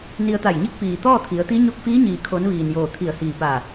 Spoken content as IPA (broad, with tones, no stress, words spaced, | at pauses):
ni˧ə̯t̪a˧˩jɲi˥˨k̚ piː˩ t̪ɔː˥˨t̪ʰi˩˧ə̯t̪i˧˥ ɲo˧k̚fiː˧˥ɲiː˩kʰo˩˧n ʋiː˩njoː˧˩ t̪ʰi˧˩ə̯hiː˧˩ paː˧˩